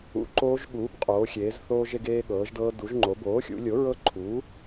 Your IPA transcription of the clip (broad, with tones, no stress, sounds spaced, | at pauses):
ṵ˩˥ ǃ oː˦˥ ʒ ɠ uː˩˥ b qʼ oː˩˧ xʲ eː˩˧ z θ oː˧ ʒ e˧ ɡ eː˧ ɠ ɤː˩˧ ʒ d ɤː˧ d u˩˧ ʒ ŋ͡ǃ o˩˧ b oː˩˥ xʲ ṵ˩˧ lʲ o˩˥ ɹ ɤ˦˥ ǃʰ uː˩˥